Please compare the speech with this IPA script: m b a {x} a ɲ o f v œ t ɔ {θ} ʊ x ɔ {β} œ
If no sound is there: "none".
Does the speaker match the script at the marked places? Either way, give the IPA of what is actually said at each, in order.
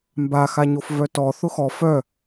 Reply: x, θ, f

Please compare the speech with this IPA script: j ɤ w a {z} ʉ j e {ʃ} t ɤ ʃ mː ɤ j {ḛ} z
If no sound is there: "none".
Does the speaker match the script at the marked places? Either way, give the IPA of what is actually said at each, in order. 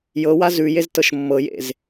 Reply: z, z, ḛ

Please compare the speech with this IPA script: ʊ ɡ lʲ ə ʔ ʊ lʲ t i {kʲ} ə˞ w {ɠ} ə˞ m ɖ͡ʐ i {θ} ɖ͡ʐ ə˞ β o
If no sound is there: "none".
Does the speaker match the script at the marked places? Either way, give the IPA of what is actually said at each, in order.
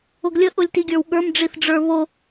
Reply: ɡʲ, ɠ, θ

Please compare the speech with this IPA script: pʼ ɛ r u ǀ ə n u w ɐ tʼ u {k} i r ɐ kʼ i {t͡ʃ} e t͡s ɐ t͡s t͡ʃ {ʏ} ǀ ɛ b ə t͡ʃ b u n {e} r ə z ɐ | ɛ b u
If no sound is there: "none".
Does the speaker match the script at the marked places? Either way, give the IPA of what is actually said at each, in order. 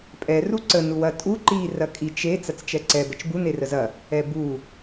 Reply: ǃ, t͡ʃ, ɛ, e

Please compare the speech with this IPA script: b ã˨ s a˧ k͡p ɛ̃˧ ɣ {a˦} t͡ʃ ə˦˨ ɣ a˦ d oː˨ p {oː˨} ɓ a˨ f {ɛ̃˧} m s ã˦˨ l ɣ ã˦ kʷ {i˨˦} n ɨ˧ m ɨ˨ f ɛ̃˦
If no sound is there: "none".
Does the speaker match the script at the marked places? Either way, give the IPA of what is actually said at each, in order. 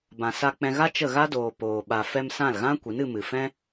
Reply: a˦, oː˨, ɛ˧, i˨˦

